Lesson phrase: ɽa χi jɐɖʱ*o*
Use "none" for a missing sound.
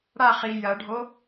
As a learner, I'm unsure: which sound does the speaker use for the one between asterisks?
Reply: o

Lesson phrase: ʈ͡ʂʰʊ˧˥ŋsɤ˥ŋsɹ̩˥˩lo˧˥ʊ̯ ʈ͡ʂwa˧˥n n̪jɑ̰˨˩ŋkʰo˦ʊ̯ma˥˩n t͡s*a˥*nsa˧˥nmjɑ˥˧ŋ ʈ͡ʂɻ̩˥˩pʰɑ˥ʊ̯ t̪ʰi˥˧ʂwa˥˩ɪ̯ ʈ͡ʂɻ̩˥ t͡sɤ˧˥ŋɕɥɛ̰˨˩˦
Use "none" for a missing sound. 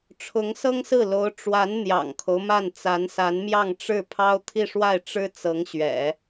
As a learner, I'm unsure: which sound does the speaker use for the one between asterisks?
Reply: a˧˥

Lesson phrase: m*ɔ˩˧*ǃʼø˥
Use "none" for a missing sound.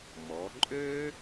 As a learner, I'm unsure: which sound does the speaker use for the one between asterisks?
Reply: ɔ˩˧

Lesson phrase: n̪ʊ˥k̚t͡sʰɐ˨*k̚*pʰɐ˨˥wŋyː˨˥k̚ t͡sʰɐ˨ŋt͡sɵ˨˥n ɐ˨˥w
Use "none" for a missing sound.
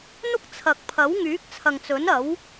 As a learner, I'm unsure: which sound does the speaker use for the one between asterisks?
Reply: k̚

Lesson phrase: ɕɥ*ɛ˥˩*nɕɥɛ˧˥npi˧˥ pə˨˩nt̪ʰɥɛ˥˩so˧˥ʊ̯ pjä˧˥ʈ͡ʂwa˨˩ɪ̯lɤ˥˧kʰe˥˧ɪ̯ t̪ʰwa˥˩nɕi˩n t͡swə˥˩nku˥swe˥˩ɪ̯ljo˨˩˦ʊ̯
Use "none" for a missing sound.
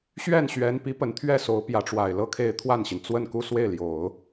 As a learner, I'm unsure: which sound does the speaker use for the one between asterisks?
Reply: ɛ˥˩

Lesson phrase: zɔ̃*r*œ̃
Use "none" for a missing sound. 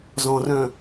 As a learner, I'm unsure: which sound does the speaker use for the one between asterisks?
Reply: r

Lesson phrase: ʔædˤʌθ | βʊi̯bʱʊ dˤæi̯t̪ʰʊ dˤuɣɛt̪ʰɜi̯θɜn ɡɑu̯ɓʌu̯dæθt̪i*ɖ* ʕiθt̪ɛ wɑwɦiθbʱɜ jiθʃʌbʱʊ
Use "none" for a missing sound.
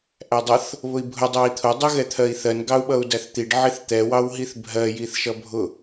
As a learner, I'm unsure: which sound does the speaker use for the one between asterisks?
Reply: ɖ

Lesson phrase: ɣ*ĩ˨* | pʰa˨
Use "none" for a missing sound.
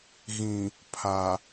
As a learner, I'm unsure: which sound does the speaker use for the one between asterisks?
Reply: ĩ˨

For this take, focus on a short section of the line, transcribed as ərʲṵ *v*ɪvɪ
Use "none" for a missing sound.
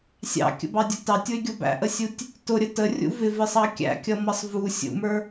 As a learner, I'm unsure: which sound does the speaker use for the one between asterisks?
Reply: v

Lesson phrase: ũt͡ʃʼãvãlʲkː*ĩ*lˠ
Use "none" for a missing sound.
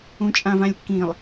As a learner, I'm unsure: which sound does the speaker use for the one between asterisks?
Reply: ĩ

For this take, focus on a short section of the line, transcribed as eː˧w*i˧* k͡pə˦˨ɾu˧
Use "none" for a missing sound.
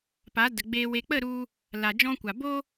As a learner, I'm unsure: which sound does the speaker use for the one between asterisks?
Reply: e˧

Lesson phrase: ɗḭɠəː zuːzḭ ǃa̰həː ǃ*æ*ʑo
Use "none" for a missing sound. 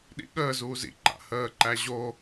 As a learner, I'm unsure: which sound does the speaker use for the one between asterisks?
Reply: æ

